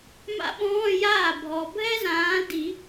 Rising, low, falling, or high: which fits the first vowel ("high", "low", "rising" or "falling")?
high